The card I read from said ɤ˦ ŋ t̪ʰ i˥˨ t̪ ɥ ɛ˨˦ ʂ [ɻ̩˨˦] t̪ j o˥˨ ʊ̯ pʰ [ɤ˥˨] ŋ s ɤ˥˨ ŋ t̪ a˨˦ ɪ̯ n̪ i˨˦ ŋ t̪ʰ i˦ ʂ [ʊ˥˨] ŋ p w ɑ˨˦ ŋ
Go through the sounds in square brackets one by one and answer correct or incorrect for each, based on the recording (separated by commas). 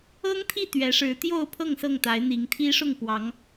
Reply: correct, correct, correct